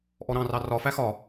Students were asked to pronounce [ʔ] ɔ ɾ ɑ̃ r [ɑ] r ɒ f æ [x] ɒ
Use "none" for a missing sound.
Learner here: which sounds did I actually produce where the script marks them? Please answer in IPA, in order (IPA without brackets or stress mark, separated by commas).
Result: ʔ, ɑ, x